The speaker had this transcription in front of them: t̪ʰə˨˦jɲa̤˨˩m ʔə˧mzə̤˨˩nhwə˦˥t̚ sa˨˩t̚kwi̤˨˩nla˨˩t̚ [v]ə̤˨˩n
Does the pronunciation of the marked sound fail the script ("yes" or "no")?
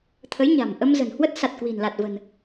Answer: no